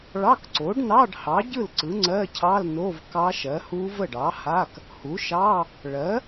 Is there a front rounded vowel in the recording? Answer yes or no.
no